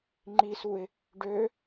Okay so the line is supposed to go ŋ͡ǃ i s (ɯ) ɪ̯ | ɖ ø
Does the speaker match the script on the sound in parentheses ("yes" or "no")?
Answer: no